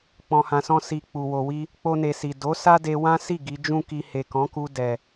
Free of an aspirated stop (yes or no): yes